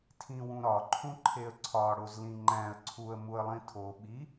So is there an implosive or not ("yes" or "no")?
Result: yes